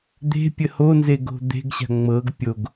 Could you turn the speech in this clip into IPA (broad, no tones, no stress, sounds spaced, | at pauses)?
d̪ e̤ pʲ ə h o n z e ɡ o̤ d̪ e̤ ɡ ɕ a̤ ŋ͡m ɤ ɡ pʲ o ɡ